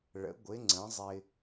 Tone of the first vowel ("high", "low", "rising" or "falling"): rising